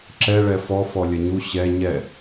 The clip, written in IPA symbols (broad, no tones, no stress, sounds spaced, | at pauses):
ǁ ɛ ɭ ɛ f ɔ f ɔ lʲ ɐ ɲ u ɕ ɛ ɲ ɛ